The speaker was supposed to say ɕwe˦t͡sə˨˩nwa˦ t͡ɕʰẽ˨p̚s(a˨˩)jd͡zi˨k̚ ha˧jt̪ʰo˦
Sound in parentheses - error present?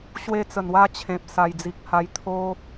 no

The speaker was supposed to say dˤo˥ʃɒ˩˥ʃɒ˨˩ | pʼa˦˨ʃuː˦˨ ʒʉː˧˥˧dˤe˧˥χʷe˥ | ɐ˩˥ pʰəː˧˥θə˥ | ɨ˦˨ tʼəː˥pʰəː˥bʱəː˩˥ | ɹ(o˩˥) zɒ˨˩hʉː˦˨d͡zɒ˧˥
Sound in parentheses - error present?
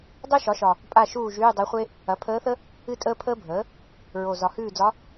yes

